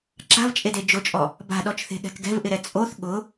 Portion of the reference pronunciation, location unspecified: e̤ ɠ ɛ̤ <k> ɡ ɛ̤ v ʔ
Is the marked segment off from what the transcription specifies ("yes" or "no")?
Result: no